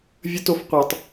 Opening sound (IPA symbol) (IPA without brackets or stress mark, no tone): vʲ